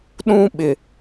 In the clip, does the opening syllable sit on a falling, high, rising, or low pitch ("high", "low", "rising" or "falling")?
high